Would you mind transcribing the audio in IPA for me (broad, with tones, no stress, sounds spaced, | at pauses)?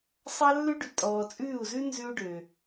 sˤ ɑ˦ lː ʉ˦ ɖ y˨ tʼ ɔː˨ t͡sʼ ʉː˦˨ u̯ z ʉ˦ n z ʉ˦ u̯ ɖ ø˨